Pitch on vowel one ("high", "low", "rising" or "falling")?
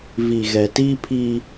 low